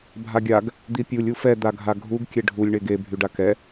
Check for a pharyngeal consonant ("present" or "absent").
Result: absent